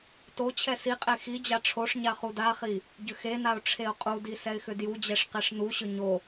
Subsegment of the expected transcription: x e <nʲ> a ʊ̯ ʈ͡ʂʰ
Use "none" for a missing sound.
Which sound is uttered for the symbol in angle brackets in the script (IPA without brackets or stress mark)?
n